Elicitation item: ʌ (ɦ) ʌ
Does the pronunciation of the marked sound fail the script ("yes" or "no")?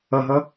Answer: no